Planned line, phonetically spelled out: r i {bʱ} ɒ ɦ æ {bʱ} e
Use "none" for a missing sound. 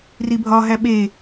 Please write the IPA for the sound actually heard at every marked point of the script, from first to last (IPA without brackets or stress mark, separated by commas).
bʱ, ɓ